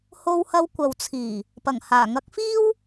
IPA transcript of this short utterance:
h o˧ w h ɐ˧ w kʷ ɐ˨ w t͡sʰ iː˨˩ | p ɐ˨˩ ŋ h aː˨˩ ŋ ɐ˨˥ k̚ f iː˥ w

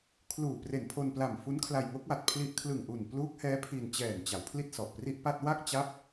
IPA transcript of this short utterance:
kʰ l uː˨˩ p r e˨˩ n pʰ o˧ n p l a˨˩ m f u˦˥ n kʰ l a˧ j ŋ o˦˥ k̚ w a˨˩ t̚ pʰ l i˥˩ ʔ kʰ l ɯ˨˩ ŋ ʔ u˨˩ n p l uː˦˥ k̚ h ɛː˦˥ pʰ i˧ n t͡ɕ ɛː˨˩ n t͡ɕ a˩˦ w pʰ l i˥˩ t̚ s ɔ˨˩ ʔ p r i˥˩ ʔ p a˥˩ t̚ w a˥˩ k̚ t͡ɕ a˦˥ p̚

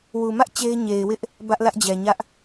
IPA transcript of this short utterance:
w u˨ m ä˦ ʔ t͡ɕ e˦ ɪ̯ ɲ e˨ ɪ̯ w ɪ˦ ʔ | b ä˦ ʔ l ä˦ ʔ d͡ʑ ɛ˨ ɲ ä˦ ʔ

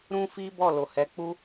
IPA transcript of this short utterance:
ɾ ũ˦ f i˦ b ɔ˦˨ l o˨ h ɛ˨˦ k͡p u˦

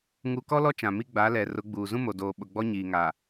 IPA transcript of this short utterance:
ŋ u˨ k ɔ˦ l ɔ˦ t͡ʃ ã˨ m i˦ ɡ͡b a˨˦ l ɛ˨ r ʊ˨˦ ɡ͡b uː˨ z ũ˦ m o˨ d oː˨ ɓ ʊ˨ ɡ͡b ɔ˦ ɲ iː˨ ŋ a˨

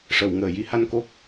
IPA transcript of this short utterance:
ʂ ə˨˩˨ w ŋ əː˨˩˨ j i˧ h a˧ n k o˦˥ k̚

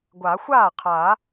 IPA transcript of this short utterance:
ɡʷ a˨˩˦ xʷ aː˥˩ qʰ a˨˩˦

